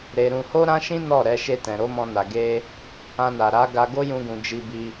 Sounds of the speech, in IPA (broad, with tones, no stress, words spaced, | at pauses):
ɾe˧ɾũ˧ ho˦ɾã˦ʃĩ˦ nɔ˦˨ ɾɛ˧ʃe˧tɛ̃˨ ɾo˨˦mɔ̃˧na˨ ɡe˧ | ã˧na˨ɾa˨˦ ɡa˧ɡo˦jũ˧ɡũ˨ d͡ʒi˧bi˧